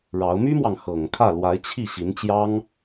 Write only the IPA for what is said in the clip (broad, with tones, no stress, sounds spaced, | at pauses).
ɻ ɑ˧˥ ʊ̯ m y˥ m w ɑ˨ ŋ x ɤ˨˩ ŋ kʰ ä˥˩ l w a˧˥ ɪ̯ t͡ɕʰ i˥˩ ɕ i˧˥ n t͡ɕ j ɑ˥ ŋ